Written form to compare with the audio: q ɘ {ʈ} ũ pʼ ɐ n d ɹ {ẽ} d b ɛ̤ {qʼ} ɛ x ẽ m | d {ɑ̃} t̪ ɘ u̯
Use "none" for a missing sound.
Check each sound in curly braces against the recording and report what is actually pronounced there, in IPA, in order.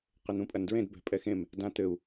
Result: n̪, ẽ, pʼ, ã

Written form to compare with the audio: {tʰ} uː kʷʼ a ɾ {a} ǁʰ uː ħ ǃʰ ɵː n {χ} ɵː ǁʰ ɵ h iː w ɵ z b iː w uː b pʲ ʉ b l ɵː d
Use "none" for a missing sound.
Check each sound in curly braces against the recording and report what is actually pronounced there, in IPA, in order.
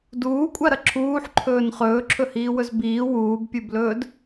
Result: d, ɐ, χ

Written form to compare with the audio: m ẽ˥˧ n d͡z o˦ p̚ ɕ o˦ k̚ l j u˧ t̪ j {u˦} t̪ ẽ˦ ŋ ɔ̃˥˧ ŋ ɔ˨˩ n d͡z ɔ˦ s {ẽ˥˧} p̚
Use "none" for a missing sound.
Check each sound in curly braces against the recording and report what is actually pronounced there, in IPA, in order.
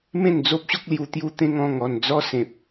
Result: u˦, ẽ˨

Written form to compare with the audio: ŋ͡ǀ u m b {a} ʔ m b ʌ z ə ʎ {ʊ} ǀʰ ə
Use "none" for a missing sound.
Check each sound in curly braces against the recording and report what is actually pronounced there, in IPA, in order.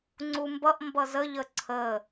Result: ʌ, ə

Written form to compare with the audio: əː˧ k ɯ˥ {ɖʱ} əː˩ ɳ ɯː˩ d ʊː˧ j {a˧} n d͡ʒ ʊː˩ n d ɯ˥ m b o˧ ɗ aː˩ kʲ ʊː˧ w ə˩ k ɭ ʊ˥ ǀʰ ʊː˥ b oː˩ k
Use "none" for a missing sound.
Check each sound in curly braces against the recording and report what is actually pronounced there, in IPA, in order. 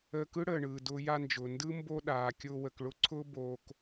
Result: ɽ, a˧

